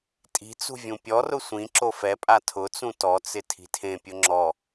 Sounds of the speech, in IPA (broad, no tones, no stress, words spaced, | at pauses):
tʼi̤t͡sṳ vʲũpʲɔrʊ sʷĩ ǁofɛpʼa tʰʊt͡sũ tɔt͡sɪ tʰi̤tʰẽpʲʊ ŋ͡ǁɔ